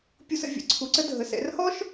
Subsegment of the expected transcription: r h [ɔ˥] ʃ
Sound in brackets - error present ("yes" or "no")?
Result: no